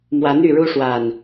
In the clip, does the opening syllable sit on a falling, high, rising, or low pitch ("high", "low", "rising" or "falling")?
rising